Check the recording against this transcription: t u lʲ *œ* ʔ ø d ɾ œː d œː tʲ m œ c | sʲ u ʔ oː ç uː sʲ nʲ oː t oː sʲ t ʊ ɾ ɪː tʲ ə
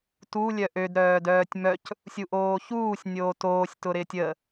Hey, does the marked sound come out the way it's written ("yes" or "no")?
yes